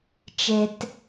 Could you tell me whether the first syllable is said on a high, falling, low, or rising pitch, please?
low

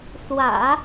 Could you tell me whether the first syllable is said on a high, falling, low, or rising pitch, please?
low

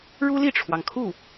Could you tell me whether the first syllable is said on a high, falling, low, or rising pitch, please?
high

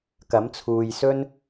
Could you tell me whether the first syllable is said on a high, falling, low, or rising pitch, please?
rising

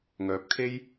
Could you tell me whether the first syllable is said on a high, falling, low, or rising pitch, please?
rising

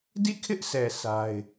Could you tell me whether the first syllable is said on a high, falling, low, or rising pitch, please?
falling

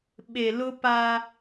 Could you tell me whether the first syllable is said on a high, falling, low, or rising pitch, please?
low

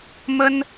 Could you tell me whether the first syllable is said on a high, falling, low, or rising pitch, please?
high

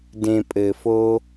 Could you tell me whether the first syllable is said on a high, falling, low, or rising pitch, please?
low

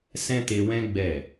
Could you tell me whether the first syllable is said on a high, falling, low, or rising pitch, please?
high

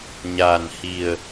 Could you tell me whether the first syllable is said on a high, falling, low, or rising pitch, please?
low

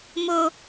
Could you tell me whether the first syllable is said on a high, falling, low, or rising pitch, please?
low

